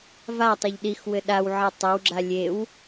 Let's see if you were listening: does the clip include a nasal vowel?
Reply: no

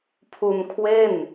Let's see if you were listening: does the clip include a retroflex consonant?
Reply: no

